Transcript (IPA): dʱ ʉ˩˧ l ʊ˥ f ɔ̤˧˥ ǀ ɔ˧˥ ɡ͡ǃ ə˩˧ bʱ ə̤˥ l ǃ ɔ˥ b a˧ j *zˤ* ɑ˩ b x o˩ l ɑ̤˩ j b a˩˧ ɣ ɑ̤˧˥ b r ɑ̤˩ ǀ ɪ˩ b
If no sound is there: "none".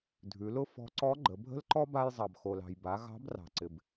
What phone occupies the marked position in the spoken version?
zˤ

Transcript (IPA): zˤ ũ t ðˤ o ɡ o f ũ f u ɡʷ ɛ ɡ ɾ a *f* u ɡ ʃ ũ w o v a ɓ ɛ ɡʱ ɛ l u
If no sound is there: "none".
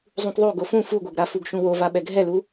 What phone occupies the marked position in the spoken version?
f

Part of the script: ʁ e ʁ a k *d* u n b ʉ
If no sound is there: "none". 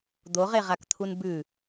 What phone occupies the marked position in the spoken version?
t̪ʰ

